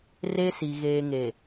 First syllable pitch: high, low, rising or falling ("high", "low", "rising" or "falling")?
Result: high